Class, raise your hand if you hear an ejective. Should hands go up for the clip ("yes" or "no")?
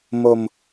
no